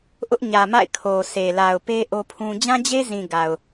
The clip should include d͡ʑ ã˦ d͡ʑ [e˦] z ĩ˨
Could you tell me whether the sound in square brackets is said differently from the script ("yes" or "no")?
no